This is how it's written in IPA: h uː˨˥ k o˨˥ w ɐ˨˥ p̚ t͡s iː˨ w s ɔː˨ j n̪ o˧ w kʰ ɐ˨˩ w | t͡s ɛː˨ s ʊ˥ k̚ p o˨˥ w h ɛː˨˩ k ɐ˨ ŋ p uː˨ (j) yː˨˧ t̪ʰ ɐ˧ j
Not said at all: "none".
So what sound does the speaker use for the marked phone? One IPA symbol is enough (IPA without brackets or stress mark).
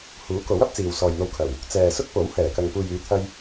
j